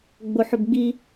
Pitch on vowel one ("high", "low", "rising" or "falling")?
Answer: high